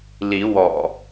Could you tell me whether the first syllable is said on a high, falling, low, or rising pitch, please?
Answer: rising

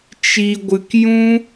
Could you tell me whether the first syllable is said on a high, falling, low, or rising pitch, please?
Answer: low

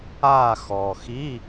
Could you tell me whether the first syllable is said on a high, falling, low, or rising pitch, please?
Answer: falling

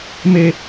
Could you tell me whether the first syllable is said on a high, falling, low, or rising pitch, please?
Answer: high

